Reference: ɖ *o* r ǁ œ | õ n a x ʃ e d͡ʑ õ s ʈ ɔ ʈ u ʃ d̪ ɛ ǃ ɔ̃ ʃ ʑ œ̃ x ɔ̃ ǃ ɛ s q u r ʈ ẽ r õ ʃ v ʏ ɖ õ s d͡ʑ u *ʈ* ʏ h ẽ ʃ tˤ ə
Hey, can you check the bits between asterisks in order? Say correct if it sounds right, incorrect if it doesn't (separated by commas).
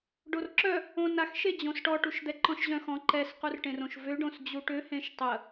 correct, correct